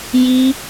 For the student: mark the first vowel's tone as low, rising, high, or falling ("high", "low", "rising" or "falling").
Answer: high